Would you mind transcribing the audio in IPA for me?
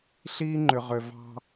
ɬ iː˦ ŋ͡ǃ ʏ˨ ʁ ø˨ v ɑ̤˦

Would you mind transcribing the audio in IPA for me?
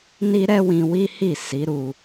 n i˦ ɾ ɛ˦ w ĩ˧ w i˦ h i˦˨ s i˨˦ ɾ u˧

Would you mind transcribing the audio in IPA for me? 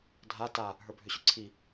dʱ a t a | ɦ ə˞ bʱ ʏ ɕ ʏ ǀʰ i

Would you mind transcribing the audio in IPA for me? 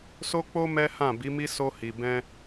s o˦ k͡p o˦ m ɛ˦ h ã˦˨ b i˨˦ m i˦ s o˧ h i˨ b ɛ̃˧

